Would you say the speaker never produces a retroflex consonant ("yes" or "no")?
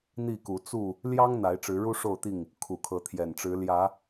no